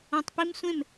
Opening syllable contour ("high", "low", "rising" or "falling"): low